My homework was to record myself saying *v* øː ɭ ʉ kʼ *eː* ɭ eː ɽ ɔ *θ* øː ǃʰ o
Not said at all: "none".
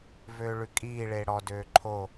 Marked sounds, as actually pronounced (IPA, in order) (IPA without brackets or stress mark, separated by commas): v, iː, d